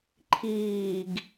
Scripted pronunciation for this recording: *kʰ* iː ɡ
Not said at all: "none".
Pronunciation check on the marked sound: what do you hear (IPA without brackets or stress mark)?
ǃʰ